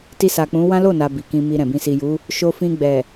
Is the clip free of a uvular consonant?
yes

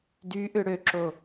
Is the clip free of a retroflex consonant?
no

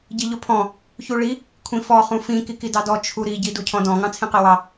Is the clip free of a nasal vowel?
no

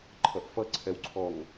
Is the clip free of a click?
no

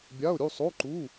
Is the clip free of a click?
no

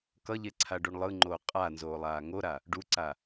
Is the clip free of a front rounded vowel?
yes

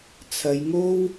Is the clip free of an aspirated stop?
no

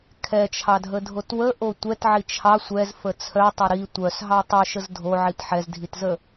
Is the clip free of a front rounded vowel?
no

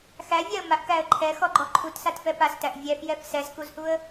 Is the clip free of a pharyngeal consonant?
yes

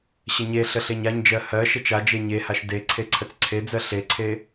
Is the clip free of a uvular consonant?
yes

